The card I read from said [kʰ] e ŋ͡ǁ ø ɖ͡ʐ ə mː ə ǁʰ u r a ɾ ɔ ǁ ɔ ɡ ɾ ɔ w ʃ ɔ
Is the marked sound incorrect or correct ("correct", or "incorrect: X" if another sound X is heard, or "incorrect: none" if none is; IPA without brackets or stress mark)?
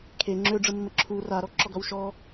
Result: correct